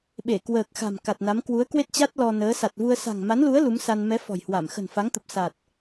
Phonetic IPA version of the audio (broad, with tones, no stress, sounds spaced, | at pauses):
ɓ e˧˩ k w əː˨˩ k̚ x a̤˨˩ m k a˨˩ t̚ n a˨˦ m k w u˨˦ ə̯ k w e˦˥ t̚ t͡ɕ a˦˥ t̚ l ɔ˧ n əː˨˦ s a˨˩ t̚ v u˧ ə̯ s a̤˨˩ ŋ m a˨˦ n l u˨˦ ə̯ l u˨˦ m s a˧ n m ɛ˨˦ f ɔ̤˨˩ j h w a˧˩ m x ə̤˨˩ n f a˨˦ ŋ t̪ ə˨˩ p̚ s a˨˩ t̚